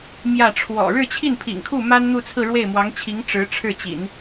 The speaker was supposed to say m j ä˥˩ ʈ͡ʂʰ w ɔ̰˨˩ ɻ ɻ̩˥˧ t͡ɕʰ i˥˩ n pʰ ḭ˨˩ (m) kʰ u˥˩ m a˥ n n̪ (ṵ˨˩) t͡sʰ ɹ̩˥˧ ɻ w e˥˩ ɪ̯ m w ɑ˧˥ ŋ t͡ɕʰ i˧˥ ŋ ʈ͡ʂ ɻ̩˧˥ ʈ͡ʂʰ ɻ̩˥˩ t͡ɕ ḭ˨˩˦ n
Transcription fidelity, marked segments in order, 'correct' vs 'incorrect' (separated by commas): incorrect, incorrect